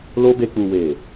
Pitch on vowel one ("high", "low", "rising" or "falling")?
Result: high